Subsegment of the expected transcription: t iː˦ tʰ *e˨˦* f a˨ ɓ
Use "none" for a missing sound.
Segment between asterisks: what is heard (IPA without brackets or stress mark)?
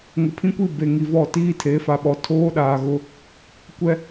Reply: e˨˦